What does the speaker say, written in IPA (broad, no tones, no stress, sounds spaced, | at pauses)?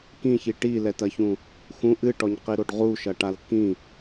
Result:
k ĩ ç i ʈ i l ɛ t ɐ ç ũ | x ũ ʔ ɨ ʈ ɔ ɲ q i ɾ o ɖ ʁ u ʃ ɐ ʈ a l k ĩ